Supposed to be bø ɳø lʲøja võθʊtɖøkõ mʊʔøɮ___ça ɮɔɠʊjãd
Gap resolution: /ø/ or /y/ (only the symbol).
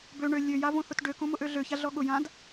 ø